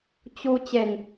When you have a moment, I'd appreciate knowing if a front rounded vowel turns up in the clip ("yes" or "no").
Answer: no